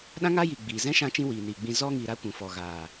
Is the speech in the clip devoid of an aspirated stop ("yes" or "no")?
yes